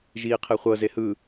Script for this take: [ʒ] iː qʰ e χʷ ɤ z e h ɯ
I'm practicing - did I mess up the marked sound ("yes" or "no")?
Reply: no